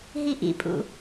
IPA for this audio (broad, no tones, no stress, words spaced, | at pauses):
ɦiʔḭpʼṵ